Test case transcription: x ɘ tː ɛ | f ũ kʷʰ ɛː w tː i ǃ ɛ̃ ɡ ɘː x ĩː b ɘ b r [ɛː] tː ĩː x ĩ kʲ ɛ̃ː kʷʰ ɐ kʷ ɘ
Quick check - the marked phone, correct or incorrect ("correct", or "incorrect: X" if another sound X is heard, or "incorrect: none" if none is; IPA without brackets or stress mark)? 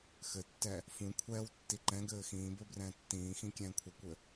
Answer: incorrect: ɛ̃ː